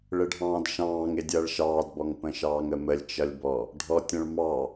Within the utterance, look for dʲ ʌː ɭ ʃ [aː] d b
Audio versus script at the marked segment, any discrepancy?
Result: yes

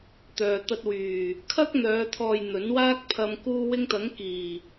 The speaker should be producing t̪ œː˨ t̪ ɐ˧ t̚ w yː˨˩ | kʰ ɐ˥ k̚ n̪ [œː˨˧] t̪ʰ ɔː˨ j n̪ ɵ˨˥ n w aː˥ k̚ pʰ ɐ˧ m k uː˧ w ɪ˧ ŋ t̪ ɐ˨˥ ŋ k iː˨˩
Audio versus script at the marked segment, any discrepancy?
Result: no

